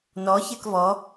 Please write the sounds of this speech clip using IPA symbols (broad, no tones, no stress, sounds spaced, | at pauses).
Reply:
n ɔ ç e k v ɔ